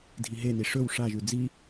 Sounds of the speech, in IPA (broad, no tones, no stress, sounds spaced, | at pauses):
dʱ i ɦ e n i ʂ ɵ w ʂ a ʒ ʉ d͡z i